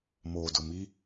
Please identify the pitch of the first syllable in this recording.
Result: low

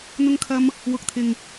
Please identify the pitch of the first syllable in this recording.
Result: high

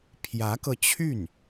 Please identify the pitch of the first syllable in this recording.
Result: rising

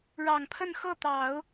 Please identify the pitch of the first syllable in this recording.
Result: low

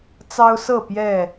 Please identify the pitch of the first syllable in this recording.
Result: high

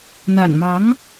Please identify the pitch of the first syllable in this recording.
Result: low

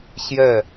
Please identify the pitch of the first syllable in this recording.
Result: falling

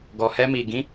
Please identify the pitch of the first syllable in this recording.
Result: low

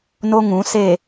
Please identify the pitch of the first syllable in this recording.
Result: high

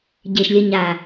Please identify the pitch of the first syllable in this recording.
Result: low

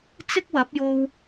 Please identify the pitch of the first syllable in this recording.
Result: high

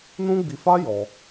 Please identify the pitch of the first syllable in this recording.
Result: high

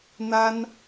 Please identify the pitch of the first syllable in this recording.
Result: high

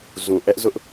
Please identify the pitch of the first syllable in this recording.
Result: low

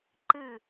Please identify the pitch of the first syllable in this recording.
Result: falling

